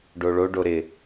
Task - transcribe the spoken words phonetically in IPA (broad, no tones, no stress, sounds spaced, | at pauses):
ɖ o ɭ o ɖ o ɾ ɪ